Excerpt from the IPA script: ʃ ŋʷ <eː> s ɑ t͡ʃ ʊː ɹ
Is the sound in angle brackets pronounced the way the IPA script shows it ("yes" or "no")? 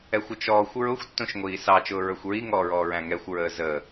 no